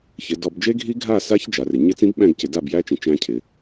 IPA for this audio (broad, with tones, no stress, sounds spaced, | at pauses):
ç ɪ˩˧ d ɔ˧˩˧ b d͡ʒ e˦˥ ɡʱ i˦˥ ɡʱ a˥˨ s a˦˥ ç d͡ʒ a˩˧ r ɪ˩˧ ɲ ɪ˦˥ t͡s ĩ˦˥ b ɓ æ̃˥˨ ɡ c ɪ˧˩˧ d a˥˨ b j æ˦˥ t͡ʃ ĩ˩˧ t͡ʃ æ̃˦˥ cʰ ɪ˩˧